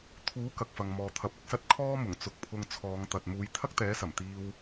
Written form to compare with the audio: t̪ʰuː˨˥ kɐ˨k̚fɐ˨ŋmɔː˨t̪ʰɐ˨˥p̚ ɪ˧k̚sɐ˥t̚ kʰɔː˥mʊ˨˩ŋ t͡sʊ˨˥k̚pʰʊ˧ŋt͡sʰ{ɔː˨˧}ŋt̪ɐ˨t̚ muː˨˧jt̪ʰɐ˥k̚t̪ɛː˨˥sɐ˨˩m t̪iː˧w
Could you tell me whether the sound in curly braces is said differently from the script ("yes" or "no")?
no